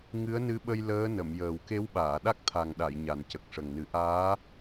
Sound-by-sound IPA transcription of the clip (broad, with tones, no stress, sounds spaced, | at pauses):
ŋ ɨ˧˥ ə̯ n ɨ˧˥ ɓ ə˧ j l əː˧˥ n ə˨˩˨ m j əː˨˩ w k e˧˥ w ɓ aː˨˩˨ ɗ a˦˥ k̚ t̪ʰ a˨˩ ŋ ɗ a˨˩˨ j ɲ a˨˩ n c ə˨˩ k̚ ʂ ə˨˩ ŋ n ɨ˨˩˦ ʔ aː˧˥